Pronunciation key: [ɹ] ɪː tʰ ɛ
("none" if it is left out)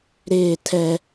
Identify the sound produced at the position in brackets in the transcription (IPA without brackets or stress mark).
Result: ɾ